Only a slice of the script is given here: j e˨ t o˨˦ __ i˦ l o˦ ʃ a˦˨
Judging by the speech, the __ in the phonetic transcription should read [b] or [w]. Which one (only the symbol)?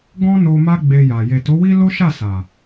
w